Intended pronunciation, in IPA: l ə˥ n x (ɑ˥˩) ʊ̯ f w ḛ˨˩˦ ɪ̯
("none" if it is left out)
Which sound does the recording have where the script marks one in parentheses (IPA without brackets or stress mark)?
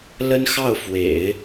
ɑ˥˩